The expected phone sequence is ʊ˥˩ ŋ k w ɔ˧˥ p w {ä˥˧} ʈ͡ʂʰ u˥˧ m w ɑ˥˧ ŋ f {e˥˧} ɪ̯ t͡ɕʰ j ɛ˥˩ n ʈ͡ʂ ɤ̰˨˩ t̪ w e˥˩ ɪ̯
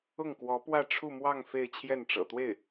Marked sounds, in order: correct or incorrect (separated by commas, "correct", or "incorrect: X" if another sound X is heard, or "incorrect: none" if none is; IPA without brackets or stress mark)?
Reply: correct, correct